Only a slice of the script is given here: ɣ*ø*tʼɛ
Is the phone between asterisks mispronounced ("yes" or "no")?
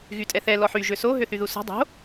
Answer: yes